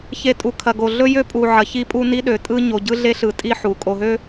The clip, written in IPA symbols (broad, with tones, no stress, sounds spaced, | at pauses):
ç e˨ tʼ u˨ kʰ ɐ˨ ɡ o˨ ɮ ɵ˦ j ø˦ pʼ u˨ ʕ ɐ˨ ç i˦ pʼ u˦ n i˦ ɗ ø˨ tʼ ɯ˦ ɲ o˨ ɟ ɯ˦ ɮ e˦ ɬ ɯ˨ tʼ i˦ ħ u˨ kʼ o˨ ɦ ø˦